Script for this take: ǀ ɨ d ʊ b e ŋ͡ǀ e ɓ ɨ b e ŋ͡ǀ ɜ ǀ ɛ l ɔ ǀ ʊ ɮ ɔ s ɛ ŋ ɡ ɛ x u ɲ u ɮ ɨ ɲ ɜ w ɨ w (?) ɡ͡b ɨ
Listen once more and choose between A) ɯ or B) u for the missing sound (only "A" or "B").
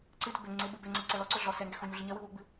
B